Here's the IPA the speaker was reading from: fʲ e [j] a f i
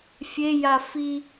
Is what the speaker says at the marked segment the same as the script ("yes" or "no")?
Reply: yes